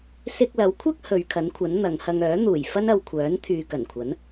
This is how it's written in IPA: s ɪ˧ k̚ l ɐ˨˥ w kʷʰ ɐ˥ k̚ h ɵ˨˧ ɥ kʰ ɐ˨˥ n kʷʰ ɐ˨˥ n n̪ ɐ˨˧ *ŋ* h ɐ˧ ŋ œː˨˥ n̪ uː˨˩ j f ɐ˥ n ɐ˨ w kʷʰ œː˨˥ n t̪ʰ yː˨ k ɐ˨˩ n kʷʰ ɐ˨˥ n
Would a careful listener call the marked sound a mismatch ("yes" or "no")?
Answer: no